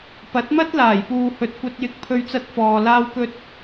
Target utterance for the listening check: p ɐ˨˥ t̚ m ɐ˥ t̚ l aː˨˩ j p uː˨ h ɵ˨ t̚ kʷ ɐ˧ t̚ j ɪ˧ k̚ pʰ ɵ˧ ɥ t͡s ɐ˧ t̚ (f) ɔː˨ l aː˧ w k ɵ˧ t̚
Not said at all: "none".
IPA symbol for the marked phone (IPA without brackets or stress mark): f